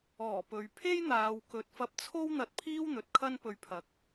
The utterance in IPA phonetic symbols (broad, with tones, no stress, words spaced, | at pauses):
ɔː˨˩pɵ˨ɥ pʰe˥jn̪aː˨wkɵ˨t̚ fɐ˧p̚t͡sʰo˥w n̪ɐ˧t̚pʰiː˥wn̪ɵ˨t̚ kʰɐ˥npɵ˧ɥ pʰɐ˧k̚